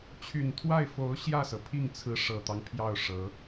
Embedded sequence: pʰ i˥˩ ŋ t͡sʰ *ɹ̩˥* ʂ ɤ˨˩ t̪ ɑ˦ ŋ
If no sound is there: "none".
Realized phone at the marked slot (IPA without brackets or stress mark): ɹ̩˧˥